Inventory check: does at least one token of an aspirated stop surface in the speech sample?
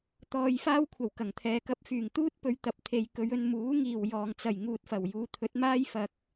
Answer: yes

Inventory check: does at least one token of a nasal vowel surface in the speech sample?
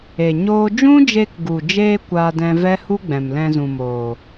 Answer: yes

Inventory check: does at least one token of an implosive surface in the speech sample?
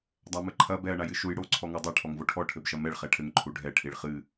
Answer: no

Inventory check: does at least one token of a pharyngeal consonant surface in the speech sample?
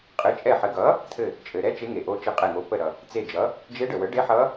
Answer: yes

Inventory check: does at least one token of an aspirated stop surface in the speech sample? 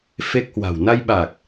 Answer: no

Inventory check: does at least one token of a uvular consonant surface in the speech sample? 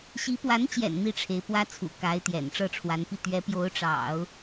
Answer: no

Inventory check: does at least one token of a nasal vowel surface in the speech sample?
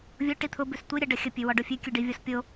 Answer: no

